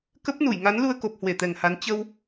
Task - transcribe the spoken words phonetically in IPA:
k ə˦˥ p̚ n u˧˩ j ŋ a˨˦ n l u˧ ə̯ k o˨˩ p̚ h w e˧˩ t̪ ɛ˨˩ ŋ h a˨˦ n t͡ɕ ə˧ w

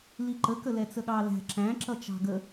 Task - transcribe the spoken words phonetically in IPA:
l i ǃ ə k ə l ɛ t͡s ə ɠ ɑ l æ̤ ǁ æ̃ ǁ ʌ t͡ʃ ɑ̤ ɡ ə

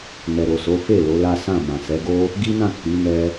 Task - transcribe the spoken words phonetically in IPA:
n ɛ˨ ɾ o˨ s o˨˦ f e˦˨ l o˨˦ l a˦ s ã˦˨ m ã˨ s ɛ˨˦ ɡ o˦ | ɡ i˦ n ã˦˨ k͡p i˨˦ n ɛ˧

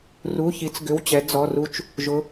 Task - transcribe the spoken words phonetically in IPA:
r u˩˧˩ ç i˩˧ t͡s ɡ ʏ˩˧˩ w t͡ɕ ɛ˩˧ d͡z ɔ˩˧˩ r u˦ t͡ʃ | ʒ ʊ˩˧

